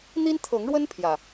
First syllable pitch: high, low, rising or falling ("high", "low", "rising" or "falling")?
high